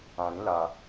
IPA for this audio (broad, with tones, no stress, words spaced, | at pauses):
ã˨ɾĩ˨˦ la˧